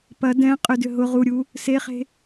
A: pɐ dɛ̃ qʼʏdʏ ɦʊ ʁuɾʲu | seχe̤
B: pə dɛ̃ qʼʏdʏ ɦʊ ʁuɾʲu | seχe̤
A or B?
A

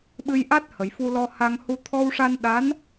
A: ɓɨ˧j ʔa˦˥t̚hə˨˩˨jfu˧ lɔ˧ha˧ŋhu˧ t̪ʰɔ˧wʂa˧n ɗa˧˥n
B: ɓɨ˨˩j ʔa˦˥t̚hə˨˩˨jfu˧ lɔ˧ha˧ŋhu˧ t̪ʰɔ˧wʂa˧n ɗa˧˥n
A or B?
A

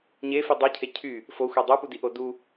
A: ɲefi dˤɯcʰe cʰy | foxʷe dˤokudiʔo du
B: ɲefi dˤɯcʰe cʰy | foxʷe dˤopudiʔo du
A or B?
B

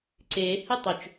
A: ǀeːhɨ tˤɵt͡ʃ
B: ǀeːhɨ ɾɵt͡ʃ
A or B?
A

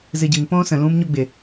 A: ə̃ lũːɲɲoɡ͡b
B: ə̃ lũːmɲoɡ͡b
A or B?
B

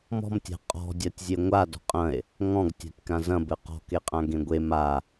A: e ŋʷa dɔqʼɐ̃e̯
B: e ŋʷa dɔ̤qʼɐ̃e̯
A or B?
B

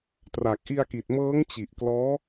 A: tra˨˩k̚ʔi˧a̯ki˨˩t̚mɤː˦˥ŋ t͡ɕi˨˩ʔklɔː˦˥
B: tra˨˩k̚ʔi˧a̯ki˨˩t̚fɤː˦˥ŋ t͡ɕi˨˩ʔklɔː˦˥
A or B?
A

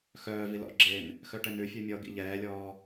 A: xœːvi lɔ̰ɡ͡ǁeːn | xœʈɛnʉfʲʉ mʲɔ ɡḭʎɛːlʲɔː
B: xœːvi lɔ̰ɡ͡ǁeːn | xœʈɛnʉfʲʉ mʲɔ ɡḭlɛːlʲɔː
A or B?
A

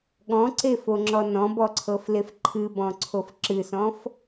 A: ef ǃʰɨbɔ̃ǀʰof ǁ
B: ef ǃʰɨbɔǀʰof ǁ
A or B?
A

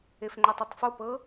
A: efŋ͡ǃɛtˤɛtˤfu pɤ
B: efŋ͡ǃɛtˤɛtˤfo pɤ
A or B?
B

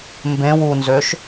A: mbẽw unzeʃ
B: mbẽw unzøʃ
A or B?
B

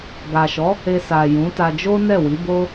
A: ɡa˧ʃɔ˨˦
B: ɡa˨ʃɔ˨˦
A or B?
B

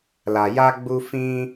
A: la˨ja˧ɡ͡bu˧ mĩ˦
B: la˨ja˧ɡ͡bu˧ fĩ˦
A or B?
B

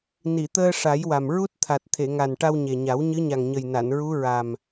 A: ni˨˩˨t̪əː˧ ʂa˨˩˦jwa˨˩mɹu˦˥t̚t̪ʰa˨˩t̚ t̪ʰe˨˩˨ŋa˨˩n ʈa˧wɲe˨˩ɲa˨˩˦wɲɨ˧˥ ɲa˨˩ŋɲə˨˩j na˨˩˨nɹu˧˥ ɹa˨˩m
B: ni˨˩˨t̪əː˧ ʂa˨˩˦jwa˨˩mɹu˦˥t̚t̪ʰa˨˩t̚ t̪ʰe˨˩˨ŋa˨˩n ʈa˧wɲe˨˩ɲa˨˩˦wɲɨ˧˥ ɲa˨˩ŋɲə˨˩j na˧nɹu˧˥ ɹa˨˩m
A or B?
A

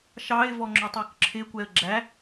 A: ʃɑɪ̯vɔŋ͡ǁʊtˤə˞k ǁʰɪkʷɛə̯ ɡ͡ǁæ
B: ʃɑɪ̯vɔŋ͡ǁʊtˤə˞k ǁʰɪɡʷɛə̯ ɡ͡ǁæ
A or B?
A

